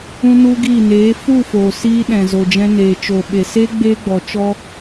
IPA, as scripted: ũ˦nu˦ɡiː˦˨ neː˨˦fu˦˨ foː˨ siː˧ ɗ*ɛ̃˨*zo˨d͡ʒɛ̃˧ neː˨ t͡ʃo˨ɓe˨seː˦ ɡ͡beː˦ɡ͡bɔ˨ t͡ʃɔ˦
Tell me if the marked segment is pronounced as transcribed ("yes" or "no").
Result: yes